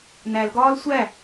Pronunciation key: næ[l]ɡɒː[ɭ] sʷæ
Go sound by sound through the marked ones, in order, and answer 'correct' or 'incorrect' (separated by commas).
correct, incorrect